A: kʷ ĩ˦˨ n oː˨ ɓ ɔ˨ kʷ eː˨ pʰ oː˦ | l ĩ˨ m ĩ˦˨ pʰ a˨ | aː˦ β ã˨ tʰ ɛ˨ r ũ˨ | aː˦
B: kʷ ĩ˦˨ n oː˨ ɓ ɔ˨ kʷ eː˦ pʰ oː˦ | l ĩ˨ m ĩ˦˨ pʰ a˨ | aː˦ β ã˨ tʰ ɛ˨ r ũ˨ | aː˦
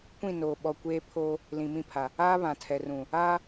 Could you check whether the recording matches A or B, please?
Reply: B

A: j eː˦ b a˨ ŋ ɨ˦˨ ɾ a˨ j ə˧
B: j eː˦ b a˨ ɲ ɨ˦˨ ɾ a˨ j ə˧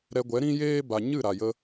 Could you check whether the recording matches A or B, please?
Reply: B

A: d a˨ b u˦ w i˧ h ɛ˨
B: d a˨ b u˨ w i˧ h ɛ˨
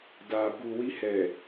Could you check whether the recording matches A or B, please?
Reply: B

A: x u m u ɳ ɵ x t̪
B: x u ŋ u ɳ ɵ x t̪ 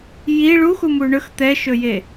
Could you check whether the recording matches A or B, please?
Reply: A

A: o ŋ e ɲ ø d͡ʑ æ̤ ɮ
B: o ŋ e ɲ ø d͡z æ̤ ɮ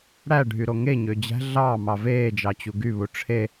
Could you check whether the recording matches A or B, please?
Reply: A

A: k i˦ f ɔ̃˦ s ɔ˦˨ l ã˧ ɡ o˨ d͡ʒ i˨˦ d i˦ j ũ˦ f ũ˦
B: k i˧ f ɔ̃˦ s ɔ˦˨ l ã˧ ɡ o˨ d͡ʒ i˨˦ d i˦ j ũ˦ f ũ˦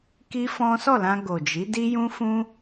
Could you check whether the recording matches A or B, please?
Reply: A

